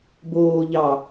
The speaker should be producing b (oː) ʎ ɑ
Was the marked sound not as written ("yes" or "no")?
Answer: no